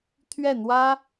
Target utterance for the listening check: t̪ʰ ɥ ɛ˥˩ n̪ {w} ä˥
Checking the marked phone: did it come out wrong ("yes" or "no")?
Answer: no